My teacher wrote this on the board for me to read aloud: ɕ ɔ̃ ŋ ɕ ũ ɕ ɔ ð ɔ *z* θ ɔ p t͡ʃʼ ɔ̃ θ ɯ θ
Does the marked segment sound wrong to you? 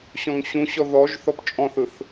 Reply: yes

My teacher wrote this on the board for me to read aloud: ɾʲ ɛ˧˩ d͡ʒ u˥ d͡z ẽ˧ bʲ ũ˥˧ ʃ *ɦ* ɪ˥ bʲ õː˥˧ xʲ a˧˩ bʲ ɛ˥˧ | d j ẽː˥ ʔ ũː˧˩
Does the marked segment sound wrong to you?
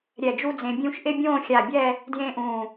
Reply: yes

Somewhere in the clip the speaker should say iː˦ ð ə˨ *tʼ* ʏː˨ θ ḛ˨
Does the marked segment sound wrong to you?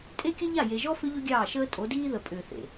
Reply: yes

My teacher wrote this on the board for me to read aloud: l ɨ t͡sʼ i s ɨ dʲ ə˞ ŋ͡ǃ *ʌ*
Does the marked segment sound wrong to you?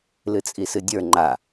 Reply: yes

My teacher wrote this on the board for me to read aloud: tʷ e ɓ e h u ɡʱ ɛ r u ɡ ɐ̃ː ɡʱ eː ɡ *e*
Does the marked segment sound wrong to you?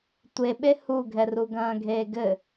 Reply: yes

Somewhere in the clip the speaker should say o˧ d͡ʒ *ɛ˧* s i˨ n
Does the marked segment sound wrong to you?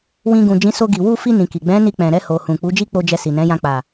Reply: no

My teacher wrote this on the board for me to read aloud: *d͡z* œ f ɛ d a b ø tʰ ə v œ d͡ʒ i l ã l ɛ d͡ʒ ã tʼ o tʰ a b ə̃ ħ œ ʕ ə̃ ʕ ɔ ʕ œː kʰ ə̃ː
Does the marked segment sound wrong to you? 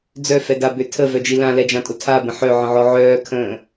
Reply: no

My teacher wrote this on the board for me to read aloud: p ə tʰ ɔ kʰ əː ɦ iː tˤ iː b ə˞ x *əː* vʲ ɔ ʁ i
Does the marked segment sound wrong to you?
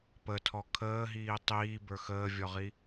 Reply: no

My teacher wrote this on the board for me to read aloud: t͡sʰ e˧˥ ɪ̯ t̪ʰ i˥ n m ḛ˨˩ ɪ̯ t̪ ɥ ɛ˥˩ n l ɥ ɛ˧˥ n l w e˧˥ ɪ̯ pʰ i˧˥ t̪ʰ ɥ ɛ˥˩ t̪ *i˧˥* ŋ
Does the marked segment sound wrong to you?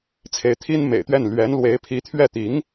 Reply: no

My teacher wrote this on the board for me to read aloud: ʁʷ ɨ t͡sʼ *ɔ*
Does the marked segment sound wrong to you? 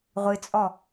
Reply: no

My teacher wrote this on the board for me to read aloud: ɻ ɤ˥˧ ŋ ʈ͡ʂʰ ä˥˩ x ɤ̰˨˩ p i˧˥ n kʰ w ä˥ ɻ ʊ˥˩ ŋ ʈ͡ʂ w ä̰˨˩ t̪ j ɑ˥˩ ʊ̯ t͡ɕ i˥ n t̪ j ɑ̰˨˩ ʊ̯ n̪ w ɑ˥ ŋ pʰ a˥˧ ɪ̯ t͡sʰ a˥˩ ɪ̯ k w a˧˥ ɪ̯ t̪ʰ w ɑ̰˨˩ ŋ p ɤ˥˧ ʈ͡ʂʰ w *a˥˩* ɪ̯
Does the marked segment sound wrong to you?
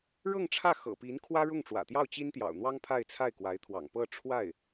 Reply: no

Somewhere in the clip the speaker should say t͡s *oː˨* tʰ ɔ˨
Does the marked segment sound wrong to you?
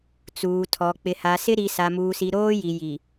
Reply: yes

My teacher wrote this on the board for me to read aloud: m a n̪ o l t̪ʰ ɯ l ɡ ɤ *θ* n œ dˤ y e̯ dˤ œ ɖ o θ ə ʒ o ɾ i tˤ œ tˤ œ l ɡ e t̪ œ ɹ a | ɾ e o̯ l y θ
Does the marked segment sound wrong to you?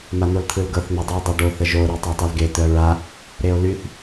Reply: no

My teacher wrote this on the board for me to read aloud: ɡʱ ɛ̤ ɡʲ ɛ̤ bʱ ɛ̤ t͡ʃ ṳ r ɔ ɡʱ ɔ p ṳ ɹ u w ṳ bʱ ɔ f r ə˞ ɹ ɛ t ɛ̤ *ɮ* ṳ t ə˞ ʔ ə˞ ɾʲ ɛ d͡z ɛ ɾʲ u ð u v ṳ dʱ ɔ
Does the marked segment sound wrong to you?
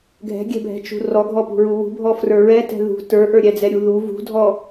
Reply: yes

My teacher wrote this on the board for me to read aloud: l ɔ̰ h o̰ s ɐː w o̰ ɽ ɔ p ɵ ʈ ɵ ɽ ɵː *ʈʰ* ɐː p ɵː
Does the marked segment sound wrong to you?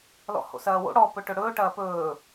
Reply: yes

